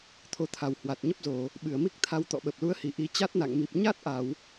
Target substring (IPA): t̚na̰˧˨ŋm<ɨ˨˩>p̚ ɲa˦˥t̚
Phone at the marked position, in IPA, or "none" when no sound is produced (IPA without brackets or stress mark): i˨˩